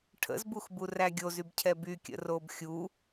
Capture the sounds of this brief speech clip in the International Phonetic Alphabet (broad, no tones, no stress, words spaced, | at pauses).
ʈʰə̰zbuxbu ræɡʲozybcʰɛ bykʲə̰ robxʲu